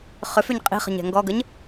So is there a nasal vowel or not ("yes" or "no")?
no